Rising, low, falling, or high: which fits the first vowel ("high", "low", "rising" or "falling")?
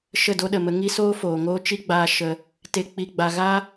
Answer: falling